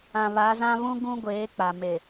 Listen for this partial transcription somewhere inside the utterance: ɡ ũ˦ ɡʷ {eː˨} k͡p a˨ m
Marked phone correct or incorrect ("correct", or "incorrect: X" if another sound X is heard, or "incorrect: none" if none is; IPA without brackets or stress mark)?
incorrect: eː˨˦